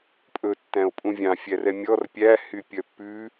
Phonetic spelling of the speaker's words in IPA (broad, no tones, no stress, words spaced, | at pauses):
pʼɵ tːæ̃o̯pʼũvʲɑ̃ fʲærɛmʲɔr pʲæ hypʲœpːʉ